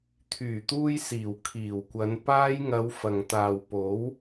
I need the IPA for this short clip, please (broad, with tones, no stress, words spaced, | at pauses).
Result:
t̪ʰyː˨˩t̪uː˧jsiː˨˩w kʰiː˨˩wkʷɐ˨˧n paː˧jŋɐ˨˧w fɐ˨ŋt̪aː˨wpo˨˥w